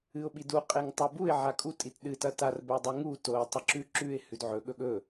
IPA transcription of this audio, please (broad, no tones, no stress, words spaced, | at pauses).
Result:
ɨʊ̯ɓidu qʼeŋtˤubuɪ̯ ʕakʼu tʼitɗɨ tɐtar bɵwdˤuŋu toɪ̯ tˤɨǁʉ ǁʉɪ̯ hʉdʕɵ ɠɵɠɵ